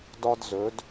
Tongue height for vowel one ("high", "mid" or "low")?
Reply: low